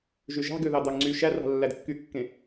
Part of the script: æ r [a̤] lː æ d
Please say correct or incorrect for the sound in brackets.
incorrect